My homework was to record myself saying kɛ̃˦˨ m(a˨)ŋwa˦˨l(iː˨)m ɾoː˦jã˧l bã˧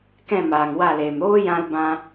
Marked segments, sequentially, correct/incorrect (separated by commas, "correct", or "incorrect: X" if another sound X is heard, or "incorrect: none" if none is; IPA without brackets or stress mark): incorrect: aː˨, incorrect: eː˨